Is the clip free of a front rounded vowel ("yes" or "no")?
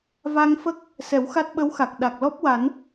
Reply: yes